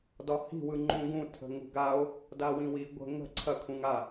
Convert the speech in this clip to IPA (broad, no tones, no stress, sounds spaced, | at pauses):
d ɒ h i̤ w ɯ ŋ͡ǃ ũ ɡ ũ tʰ ə̤ ŋ ṳ ɡ a o̯ | d a w ĩ w i ɡʷ ə̤ ŋ ə̤ ǀʰ ɐ kʰ ũ ŋ a